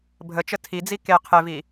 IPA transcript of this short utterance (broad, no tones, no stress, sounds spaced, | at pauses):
bʱ ə t͡ʃ ə tʰ i d͡z i k e qʰ e v i